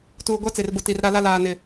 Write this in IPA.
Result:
tuː˨ɡʷa˦t͡se˨rbʊ˨ ti˨rɾa˦la˦ laː˨nɪ˨

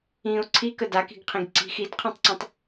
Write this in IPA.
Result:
ĩʊ̯ ǀʰikə daki̤ɡqʰĩɡ ǀi̤x idqʰɛ̃tˤǀũtˤ

